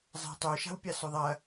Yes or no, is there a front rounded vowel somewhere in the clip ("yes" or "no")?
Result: yes